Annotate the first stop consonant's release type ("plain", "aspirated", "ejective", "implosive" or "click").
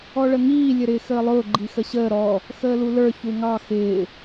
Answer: click